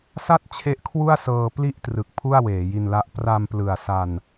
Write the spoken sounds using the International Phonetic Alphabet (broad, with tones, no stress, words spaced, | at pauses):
sa˥˩t̚ t͡ɕʰe˦˥ʔkʰwu˥˩a̯sɤː˧ pli˥˩ʔtrɯ˨˩k̚ pʰu˥˩a̯weː˩˦ji˧nla˦˥ʔ pra˧mplɯ˨˩a̯ sa˧n